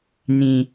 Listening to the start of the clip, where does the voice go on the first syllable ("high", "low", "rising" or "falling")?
high